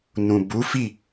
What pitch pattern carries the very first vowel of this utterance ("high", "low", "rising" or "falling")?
low